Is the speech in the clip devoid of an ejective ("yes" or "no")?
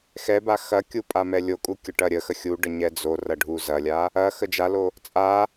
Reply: no